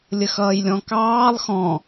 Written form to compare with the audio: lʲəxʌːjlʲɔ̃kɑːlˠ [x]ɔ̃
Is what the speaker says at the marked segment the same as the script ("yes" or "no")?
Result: yes